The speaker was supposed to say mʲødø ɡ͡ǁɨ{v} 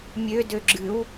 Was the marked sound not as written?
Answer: yes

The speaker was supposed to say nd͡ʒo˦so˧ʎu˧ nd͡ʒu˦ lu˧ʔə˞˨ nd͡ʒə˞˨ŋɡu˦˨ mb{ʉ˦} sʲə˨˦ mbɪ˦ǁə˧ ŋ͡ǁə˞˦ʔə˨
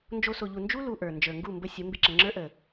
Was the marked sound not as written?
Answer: yes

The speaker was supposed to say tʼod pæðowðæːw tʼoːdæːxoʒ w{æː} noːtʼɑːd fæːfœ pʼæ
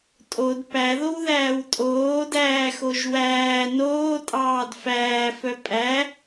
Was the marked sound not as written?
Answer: no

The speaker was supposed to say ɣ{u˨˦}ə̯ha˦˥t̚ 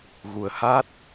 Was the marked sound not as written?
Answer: yes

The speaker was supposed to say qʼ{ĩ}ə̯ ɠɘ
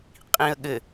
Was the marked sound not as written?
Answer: no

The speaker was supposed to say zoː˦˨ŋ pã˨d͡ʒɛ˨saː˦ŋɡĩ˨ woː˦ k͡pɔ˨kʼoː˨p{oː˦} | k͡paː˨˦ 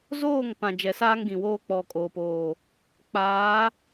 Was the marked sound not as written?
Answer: yes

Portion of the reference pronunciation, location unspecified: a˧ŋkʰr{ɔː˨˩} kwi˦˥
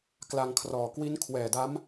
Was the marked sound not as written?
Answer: no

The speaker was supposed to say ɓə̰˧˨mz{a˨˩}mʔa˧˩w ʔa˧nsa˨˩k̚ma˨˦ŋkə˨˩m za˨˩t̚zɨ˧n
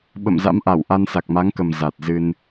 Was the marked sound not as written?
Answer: yes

